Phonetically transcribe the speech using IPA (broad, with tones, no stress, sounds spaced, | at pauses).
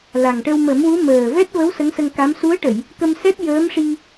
l a˨˩ ŋ ʈ ə˧ w m ə˨˩˦ m w u˧˥ m əː˨˩ v ɛ˦˥ t̚ v ə˧˥ w s ə˧˥ ŋ s ə˧ ŋ k a˧˥ m s u˧˥ ə̯ ʈ ə˨˩˨ j | k ə˧ m s ɛ˦˥ t̚ j əː˧˥ m ʂ i˧